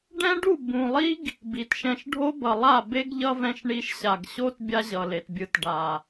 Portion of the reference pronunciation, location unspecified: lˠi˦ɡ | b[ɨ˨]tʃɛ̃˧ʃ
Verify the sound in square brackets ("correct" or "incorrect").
incorrect